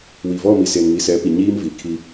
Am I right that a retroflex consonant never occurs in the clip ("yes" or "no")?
yes